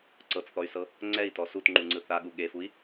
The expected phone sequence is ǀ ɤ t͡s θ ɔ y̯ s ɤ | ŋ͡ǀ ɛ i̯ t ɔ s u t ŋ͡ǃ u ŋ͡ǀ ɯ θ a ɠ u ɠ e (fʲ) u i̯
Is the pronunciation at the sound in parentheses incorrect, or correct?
incorrect